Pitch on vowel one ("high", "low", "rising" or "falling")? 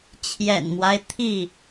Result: low